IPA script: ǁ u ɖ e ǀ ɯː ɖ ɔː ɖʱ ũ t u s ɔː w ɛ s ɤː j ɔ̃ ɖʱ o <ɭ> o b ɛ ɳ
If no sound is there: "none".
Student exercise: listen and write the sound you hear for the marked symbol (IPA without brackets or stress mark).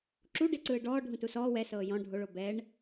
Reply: ɭ